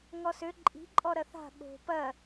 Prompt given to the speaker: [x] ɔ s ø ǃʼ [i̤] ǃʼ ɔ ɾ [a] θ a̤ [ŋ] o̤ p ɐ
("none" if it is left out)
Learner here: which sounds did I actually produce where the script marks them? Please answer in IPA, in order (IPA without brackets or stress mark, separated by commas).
ŋ, i̤, ɐ, ɠ